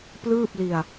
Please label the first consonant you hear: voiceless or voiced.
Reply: voiceless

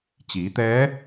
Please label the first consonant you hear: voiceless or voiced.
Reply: voiceless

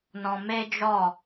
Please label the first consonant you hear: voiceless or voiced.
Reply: voiced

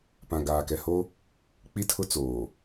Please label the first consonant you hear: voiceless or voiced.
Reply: voiceless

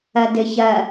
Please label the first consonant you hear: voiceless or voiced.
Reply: voiced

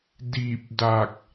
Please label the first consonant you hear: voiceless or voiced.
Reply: voiced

